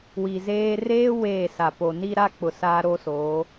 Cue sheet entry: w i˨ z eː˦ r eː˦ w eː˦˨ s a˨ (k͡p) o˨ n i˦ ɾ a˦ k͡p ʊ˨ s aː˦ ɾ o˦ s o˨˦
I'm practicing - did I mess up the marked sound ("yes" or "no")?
yes